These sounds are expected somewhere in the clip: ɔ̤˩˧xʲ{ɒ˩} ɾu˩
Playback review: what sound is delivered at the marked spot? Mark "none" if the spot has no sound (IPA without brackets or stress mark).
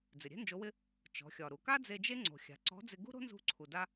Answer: ɒ˩